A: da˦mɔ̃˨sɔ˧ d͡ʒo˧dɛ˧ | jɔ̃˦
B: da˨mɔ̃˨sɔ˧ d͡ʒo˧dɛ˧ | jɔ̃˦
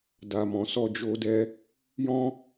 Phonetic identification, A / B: B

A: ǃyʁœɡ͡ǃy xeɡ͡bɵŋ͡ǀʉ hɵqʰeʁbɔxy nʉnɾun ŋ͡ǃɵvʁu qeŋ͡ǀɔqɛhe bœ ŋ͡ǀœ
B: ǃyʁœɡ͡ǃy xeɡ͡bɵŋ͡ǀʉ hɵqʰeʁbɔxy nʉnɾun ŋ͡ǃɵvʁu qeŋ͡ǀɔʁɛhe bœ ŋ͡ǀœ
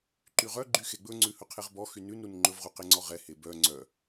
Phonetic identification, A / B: B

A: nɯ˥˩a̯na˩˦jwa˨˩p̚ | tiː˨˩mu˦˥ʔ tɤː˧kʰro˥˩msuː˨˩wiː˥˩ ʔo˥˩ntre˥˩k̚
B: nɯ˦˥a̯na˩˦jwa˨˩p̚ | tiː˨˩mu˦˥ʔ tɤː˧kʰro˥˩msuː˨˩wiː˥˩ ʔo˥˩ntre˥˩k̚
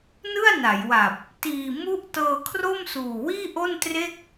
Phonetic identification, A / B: A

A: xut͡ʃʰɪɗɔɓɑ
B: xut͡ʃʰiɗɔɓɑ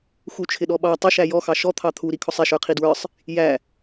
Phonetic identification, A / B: A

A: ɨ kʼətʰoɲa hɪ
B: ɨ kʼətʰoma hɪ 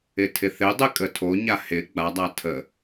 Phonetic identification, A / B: A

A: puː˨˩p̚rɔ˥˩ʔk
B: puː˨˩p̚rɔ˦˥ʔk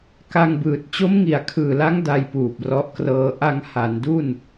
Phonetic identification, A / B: B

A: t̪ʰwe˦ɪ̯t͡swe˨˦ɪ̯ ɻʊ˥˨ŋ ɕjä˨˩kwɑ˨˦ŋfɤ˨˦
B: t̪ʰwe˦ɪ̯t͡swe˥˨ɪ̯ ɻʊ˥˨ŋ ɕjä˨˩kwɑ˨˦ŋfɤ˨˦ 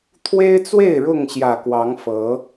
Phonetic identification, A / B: B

